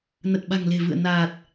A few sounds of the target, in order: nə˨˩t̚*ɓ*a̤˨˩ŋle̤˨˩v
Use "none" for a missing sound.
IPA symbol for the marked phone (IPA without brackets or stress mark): ɓ